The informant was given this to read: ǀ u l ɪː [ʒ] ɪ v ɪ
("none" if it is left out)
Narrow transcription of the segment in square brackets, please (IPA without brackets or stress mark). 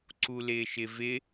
ʃ